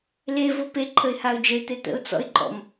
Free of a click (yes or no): no